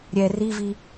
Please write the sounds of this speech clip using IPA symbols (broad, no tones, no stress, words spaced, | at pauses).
ɾʲɛ rivi